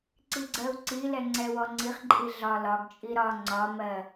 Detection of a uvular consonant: present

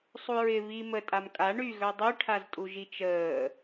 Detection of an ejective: present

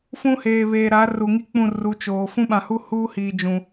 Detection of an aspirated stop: absent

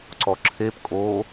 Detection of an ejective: present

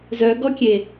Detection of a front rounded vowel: present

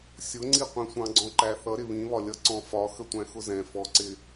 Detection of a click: present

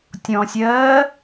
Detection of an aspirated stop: absent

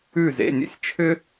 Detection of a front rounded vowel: present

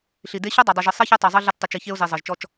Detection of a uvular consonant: absent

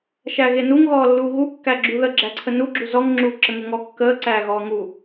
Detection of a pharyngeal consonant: absent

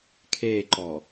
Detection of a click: present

